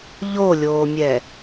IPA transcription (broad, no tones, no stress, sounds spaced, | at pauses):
ʎ o lʲ oː mʲ ɛ